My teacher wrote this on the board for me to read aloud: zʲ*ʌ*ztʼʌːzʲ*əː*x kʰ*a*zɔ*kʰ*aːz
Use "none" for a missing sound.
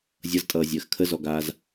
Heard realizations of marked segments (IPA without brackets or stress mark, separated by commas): ʌ, əː, ə, ɡ